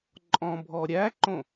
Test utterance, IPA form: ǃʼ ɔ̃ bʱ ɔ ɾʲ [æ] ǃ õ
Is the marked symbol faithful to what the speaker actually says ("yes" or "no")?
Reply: yes